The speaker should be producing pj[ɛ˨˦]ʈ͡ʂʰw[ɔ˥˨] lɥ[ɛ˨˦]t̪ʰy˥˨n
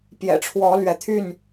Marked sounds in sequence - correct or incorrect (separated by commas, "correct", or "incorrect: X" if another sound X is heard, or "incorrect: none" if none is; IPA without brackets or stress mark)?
incorrect: ɛ̰˨˩, incorrect: ɔ˨˦, correct